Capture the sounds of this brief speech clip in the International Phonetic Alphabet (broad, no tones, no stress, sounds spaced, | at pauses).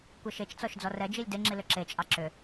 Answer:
kʷ ɛ ʃ e t͡ʃ t͡s ɔ ʃ d͡z ɔ r ɛ d͡ʒ i lʲ d e ŋ͡ǁ i l ʏ ǁ e t͡ʃʼ ɑ ǁ ʏ